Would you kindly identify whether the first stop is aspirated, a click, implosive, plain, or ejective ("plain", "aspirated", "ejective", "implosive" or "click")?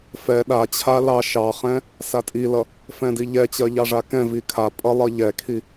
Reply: implosive